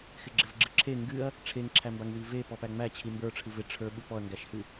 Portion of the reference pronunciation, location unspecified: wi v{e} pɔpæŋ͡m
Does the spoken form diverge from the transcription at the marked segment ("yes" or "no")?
no